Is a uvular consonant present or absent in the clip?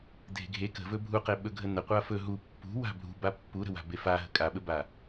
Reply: present